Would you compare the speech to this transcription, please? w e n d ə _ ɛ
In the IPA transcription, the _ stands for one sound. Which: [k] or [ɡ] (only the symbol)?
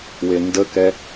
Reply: k